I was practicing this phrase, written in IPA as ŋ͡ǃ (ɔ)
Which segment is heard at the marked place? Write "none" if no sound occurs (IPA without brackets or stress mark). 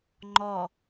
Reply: ɔ